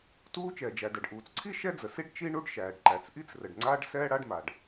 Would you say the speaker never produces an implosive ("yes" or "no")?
yes